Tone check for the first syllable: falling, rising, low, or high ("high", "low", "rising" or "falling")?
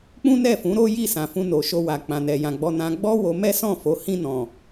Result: high